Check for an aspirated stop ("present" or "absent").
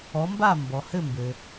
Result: absent